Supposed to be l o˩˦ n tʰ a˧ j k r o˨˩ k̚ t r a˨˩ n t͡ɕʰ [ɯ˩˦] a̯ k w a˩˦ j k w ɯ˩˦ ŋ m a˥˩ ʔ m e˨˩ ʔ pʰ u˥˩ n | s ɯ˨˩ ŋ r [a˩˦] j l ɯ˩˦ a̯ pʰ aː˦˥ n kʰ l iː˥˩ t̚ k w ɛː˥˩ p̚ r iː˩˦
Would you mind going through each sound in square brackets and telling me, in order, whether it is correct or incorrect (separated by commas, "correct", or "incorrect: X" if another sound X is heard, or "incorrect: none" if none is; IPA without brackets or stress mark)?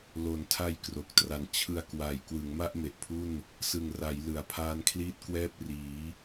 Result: incorrect: ɯ˧, correct